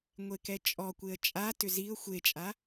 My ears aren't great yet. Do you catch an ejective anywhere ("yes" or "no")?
yes